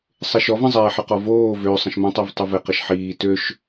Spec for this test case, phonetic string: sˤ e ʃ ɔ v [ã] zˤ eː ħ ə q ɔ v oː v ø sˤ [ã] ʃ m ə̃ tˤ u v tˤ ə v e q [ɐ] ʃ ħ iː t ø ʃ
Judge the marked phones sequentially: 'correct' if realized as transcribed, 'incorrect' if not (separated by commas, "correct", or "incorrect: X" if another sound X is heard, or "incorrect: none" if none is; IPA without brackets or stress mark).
incorrect: ə̃, incorrect: ə̃, incorrect: ə